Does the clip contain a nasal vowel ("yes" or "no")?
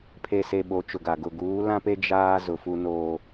yes